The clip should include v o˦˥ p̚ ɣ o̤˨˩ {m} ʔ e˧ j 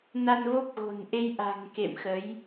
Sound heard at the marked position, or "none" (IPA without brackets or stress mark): n